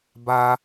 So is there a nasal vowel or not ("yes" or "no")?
no